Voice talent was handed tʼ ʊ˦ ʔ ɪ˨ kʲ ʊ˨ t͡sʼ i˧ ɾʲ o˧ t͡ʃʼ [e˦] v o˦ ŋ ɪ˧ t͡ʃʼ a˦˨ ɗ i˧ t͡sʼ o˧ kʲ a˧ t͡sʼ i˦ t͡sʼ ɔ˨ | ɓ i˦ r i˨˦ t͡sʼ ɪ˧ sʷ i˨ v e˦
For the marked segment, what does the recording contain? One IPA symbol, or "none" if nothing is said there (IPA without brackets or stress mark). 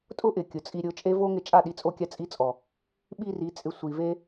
e˦